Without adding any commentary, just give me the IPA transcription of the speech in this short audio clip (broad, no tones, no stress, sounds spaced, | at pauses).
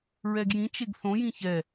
ɹ ɛ ɡ j ĩ t͡ʃ e ɡ θ õ j ĩ ç ɛ